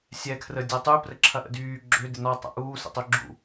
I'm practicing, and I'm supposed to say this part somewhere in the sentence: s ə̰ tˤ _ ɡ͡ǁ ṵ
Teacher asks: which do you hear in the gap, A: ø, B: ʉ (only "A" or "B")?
A